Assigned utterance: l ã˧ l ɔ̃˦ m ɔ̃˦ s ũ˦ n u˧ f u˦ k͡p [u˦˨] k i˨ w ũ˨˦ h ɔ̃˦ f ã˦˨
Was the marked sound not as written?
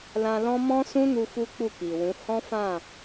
no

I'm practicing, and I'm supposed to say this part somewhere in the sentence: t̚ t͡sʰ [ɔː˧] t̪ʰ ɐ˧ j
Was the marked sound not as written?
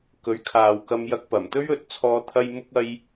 no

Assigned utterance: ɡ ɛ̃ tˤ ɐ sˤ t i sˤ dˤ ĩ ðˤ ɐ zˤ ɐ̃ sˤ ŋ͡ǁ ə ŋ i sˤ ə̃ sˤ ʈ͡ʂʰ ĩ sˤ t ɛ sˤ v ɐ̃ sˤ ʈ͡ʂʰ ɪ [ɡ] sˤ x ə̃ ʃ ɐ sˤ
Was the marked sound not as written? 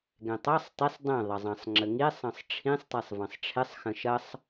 yes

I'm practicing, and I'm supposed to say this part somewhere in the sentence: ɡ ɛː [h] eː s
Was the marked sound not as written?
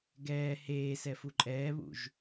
no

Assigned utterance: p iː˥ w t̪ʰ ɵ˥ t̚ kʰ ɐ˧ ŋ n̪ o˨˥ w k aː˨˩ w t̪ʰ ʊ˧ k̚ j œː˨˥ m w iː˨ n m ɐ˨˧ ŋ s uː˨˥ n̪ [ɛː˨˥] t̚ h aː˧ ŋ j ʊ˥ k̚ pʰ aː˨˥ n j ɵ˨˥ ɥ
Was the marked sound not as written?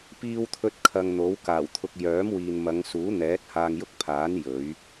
no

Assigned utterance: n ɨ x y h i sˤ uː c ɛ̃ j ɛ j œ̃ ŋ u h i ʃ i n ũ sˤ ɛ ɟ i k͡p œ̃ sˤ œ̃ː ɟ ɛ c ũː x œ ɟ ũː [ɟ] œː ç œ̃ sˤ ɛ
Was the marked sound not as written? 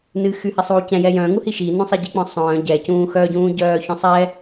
no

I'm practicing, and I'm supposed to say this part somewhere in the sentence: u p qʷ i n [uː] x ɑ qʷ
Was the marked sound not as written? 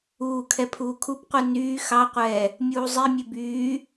yes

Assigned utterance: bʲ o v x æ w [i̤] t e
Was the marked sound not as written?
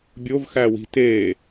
no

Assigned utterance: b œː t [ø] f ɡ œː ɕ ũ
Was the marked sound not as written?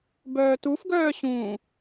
yes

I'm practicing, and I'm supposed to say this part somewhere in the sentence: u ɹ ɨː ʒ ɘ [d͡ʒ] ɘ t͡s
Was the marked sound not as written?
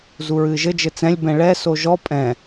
no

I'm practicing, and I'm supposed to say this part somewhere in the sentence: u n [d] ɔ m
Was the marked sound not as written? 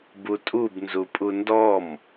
no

